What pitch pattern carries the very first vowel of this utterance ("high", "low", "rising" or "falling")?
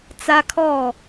high